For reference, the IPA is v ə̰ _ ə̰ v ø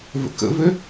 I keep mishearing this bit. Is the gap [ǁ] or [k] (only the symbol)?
k